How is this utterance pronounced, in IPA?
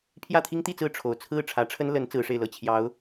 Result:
pʰjä˥˩t̪ʰi˥ŋt̪i˥˧t͡sɹ̩˥˩ ʈ͡ʂʰo˨˩ʊ̯t͡sʰɹ̩˥˩ ʈ͡ʂʰä˧˥ʈ͡ʂʰə˥n lə˧˥n t͡sɹ̩˧˥ʂe˥˧ɪ̯lɤ˥˩ t͡ɕʰjɑ˧˥ʊ̯

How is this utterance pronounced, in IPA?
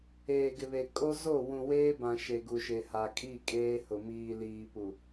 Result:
eː˨ɡɪ˨βe˨ kʼo˦zo˦˨ wũ˨weː˦bã˨ ʃe˨ɡu˨ʃe˨ha˨ kʼi˦˨ kʼeː˦hʊ˨ miː˨liː˨pu˨

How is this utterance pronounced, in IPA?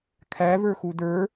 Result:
kʰævə˞xu də˞

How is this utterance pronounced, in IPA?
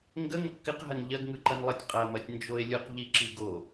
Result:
ŋɡə ŋɪqkɪq ɦɐnʎɐɡ ŋɯǃɐnlˠətʲ qʼɐmɐtʲ nd͡ʒoe̯lʲɯq ʎiǁiɡo

